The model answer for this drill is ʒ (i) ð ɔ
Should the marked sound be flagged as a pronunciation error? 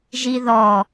no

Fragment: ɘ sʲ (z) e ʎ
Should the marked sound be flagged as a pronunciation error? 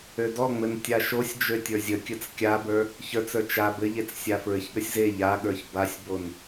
no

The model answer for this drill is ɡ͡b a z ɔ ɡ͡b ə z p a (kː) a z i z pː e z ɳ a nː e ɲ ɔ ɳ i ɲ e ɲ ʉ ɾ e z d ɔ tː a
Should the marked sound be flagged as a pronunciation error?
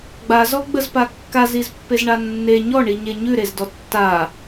no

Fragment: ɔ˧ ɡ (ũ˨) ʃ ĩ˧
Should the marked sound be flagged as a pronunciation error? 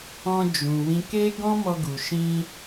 yes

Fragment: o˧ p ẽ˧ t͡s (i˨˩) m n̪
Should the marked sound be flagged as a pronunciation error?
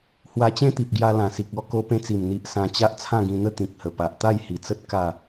no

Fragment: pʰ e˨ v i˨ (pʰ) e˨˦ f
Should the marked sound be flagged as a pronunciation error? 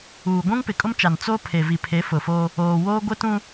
no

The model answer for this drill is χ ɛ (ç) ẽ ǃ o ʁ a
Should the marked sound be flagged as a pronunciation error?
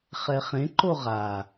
yes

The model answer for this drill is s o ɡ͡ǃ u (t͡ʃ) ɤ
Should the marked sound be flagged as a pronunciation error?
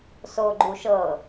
yes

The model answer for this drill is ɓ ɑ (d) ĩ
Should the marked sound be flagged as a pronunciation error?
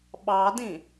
no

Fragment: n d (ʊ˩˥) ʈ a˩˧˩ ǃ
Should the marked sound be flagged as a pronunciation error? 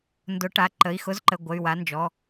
no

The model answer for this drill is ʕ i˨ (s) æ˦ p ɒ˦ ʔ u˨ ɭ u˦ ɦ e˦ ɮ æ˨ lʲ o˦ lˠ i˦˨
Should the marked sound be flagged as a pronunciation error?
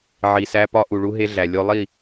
no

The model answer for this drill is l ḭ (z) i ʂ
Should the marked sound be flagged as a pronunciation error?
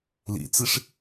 yes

